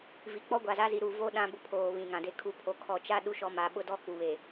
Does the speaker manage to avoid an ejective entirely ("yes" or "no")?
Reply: yes